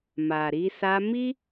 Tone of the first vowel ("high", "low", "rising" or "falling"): low